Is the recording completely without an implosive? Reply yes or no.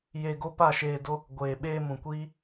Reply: no